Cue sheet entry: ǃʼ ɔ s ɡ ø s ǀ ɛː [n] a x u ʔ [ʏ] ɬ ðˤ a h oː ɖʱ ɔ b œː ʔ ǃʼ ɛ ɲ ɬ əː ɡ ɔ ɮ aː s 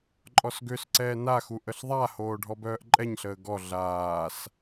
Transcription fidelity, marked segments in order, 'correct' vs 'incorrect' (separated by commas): correct, incorrect